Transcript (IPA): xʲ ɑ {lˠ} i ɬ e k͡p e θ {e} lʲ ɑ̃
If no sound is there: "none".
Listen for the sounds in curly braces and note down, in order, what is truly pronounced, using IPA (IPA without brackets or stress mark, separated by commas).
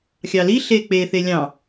l, e